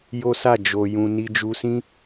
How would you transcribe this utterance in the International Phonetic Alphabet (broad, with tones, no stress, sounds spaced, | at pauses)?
j o˦ s a˦˨ d͡ʒ o˧ j ũ˧ n i˧ d͡ʒ u˧ s ĩ˦